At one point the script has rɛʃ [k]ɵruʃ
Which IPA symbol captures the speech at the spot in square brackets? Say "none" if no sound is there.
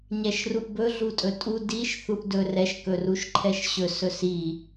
k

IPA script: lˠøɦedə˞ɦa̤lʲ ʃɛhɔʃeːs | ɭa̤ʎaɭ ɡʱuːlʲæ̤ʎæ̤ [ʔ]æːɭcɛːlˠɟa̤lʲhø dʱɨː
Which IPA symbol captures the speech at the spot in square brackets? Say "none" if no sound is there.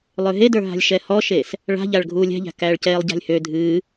k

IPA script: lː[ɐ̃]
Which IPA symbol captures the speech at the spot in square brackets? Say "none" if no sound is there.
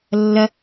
ɐ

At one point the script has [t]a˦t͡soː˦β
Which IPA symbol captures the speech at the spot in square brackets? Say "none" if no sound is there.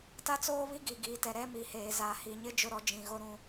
t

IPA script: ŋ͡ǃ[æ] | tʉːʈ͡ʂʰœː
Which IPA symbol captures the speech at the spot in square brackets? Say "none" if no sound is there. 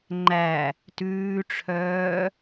æ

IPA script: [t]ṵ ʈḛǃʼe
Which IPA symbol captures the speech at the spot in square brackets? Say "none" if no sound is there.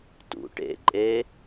t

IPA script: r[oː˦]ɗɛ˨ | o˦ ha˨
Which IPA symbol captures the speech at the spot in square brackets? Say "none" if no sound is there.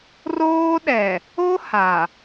oː˦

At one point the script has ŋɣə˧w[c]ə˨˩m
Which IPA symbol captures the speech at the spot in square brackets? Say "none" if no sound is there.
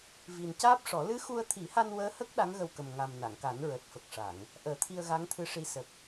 k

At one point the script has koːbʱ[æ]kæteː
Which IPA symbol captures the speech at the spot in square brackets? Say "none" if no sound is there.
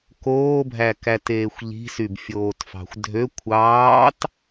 æ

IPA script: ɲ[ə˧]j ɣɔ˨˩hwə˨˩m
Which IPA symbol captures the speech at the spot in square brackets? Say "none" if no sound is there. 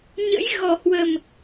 ə̰˧˥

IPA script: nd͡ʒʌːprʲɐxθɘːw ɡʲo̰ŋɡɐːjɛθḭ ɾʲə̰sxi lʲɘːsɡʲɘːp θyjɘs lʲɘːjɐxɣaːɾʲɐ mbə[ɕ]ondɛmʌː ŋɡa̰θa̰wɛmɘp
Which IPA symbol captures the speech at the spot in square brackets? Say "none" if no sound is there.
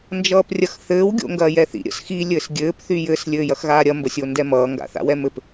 sʲ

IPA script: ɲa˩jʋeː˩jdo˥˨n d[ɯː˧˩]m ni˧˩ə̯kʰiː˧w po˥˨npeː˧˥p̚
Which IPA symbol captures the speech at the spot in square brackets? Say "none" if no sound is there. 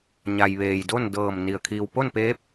ɤː˧˩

